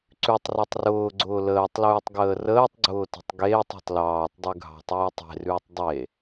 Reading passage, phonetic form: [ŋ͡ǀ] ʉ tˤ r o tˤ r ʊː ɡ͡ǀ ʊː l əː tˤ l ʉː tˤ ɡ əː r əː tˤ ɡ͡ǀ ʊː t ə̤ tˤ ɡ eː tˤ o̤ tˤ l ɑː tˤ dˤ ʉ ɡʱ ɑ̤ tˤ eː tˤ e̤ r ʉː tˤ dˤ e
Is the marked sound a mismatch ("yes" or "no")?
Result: yes